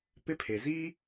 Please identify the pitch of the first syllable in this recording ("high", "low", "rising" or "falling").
high